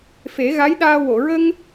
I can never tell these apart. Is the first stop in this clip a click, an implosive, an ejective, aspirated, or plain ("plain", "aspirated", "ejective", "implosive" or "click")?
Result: implosive